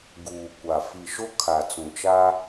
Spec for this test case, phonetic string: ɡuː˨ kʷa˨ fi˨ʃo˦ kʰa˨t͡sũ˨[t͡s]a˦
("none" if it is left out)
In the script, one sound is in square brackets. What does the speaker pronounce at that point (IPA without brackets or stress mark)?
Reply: t͡ʃ